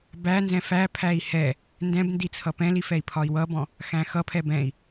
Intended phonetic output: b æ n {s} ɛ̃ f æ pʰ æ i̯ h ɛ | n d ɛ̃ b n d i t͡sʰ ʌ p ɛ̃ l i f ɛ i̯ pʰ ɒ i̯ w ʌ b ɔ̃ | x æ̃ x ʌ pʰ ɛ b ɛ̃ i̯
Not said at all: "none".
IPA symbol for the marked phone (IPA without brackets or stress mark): z